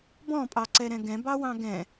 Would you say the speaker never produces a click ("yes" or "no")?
no